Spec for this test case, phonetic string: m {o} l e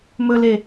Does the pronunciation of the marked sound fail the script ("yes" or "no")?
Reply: yes